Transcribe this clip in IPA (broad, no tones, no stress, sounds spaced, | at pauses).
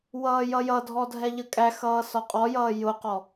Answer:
w ʌː j ʌ j ʌ dʱ ɔ dʱ ɛ ʎ ə kʼ æ x ʌː s ɒ qʼ ɔ j ʌː j ʊ q ɔ